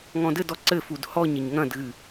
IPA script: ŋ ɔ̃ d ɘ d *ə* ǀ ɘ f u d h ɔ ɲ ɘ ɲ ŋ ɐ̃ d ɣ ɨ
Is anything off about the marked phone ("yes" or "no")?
yes